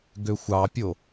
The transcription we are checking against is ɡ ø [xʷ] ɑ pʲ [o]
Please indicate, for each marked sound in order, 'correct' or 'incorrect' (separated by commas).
correct, correct